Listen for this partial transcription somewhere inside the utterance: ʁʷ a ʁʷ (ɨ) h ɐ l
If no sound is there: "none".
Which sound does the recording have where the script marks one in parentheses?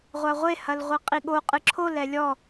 e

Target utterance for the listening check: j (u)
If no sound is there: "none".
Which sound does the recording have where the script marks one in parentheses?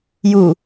u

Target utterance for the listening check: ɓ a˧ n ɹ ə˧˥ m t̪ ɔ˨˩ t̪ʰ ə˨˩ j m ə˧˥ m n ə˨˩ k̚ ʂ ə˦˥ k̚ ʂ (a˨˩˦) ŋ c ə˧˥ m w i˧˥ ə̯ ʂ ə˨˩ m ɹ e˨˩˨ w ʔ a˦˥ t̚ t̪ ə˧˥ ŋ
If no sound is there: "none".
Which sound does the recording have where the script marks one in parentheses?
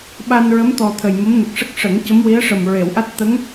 ə˨˩˦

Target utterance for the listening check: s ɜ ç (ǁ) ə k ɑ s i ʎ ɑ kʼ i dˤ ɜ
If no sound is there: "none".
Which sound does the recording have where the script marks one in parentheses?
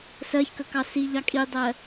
k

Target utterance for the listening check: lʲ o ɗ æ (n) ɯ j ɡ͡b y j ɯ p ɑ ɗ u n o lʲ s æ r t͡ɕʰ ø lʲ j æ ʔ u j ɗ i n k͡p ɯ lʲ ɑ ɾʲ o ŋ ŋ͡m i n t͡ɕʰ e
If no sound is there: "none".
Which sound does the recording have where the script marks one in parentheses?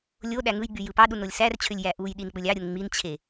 ŋ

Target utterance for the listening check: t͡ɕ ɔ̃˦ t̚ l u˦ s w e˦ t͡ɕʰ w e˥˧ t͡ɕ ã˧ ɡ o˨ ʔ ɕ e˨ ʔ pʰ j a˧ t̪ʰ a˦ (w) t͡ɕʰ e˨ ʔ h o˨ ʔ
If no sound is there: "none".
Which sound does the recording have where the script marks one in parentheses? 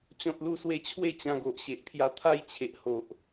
j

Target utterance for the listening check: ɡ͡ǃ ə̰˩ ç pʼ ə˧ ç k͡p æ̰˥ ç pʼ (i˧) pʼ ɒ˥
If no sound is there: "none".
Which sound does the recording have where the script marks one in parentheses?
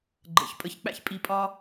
i˧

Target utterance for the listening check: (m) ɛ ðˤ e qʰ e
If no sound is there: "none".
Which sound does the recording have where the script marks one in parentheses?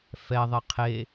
f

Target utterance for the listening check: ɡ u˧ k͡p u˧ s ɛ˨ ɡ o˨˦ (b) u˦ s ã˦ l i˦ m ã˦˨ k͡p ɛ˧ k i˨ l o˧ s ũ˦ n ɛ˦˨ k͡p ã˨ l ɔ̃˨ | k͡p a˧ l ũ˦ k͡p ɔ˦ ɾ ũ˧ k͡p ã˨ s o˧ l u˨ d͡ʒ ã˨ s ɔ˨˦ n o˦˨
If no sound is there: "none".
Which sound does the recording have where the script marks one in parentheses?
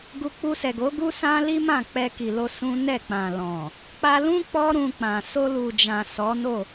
ɡ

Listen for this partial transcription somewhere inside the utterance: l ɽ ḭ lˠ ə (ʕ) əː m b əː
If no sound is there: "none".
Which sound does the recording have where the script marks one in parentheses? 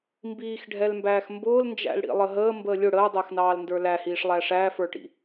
ɦ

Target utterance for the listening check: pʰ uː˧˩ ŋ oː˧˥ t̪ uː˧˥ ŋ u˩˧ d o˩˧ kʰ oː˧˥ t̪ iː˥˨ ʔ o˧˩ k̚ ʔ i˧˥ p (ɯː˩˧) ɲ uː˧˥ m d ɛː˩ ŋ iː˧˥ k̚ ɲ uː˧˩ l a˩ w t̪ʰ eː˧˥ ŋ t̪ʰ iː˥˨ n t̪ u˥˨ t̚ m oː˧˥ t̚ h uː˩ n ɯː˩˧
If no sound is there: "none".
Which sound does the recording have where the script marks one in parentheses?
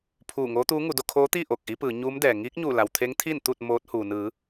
ɯː˩˧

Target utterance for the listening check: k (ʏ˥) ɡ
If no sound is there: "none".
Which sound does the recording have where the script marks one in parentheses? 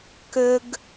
ʏ˥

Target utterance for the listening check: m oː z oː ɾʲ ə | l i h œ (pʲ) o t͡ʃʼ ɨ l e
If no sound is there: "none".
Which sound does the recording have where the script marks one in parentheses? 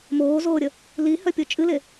pʲ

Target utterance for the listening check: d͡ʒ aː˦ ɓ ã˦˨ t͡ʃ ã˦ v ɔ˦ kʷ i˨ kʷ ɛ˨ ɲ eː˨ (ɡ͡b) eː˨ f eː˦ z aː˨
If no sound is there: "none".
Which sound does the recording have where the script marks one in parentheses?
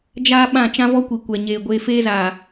ɡʷ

